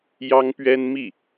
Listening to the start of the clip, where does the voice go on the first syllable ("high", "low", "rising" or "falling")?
high